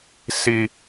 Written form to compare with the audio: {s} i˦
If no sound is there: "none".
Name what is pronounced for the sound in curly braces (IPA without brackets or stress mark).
s